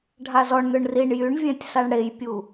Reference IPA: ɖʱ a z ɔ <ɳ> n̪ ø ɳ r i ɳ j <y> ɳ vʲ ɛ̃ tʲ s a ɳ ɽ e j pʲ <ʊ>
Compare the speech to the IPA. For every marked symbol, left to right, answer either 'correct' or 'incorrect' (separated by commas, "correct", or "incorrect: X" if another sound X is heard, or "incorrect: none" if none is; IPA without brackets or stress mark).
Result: correct, correct, incorrect: u